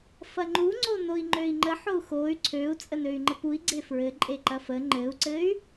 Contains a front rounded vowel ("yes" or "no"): yes